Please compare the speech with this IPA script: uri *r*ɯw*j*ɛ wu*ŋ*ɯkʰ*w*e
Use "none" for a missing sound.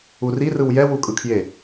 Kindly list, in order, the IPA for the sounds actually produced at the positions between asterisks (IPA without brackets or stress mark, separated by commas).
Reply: r, j, kʼ, j